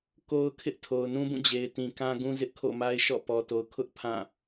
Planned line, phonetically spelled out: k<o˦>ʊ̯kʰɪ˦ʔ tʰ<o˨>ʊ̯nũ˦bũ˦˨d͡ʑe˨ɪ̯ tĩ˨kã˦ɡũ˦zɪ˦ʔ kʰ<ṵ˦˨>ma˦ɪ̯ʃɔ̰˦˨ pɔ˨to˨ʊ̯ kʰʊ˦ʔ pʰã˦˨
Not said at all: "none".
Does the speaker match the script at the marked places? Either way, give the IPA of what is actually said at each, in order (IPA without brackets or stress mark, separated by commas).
o˦, o˨, o̰˦˨